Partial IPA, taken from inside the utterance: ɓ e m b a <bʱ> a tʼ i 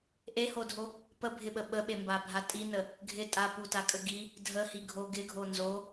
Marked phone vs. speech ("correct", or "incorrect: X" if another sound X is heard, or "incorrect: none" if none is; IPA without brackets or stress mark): correct